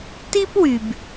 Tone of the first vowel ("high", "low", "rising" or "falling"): high